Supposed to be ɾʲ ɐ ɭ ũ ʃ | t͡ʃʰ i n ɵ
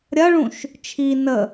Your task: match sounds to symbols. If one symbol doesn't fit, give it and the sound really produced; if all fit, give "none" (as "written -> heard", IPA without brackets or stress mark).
ɵ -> ə